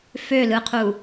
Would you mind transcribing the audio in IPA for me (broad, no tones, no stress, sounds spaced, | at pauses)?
f ø l ɯ qʰ u